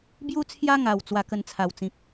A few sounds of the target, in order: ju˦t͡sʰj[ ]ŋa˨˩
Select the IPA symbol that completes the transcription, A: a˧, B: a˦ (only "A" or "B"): B